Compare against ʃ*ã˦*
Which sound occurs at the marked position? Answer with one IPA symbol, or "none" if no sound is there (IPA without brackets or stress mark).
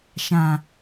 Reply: ã˨